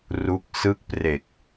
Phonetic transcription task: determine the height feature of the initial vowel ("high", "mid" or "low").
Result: high